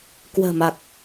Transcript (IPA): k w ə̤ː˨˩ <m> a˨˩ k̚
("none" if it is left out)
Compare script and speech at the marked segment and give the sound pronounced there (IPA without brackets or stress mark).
m